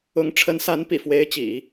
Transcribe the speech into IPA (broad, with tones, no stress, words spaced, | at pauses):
ʊ˧˥ŋ ʈ͡ʂʰə˧˥nsa˧˥n pḭ˨˩ fwe˧˥ɪ̯t͡ɕḭ˨˩˦